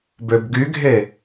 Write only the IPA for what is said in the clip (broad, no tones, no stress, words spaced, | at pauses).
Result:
bøbɡyɡʱe